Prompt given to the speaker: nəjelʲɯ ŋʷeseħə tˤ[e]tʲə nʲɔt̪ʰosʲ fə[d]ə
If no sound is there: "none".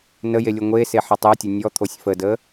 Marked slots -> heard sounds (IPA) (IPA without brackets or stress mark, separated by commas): e, d